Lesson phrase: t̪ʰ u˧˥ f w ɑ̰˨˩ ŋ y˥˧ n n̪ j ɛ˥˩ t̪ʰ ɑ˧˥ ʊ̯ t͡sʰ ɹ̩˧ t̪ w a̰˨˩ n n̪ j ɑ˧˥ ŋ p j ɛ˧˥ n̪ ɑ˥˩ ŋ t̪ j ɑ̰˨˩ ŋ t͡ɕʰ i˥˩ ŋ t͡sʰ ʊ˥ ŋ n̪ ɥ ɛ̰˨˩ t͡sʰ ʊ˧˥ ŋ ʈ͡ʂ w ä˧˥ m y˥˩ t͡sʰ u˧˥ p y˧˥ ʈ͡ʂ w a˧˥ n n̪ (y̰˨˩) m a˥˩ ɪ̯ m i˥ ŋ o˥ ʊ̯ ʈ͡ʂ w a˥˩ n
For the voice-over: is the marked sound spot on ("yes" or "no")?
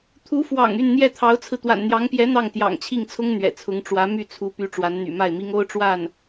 yes